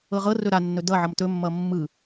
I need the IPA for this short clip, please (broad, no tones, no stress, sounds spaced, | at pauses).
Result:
ɤ ʁ ɤ r ɵ ɾ a nː ɵ d ʌ ʕ ʌ m t ɵ mː ʌ mː ɯ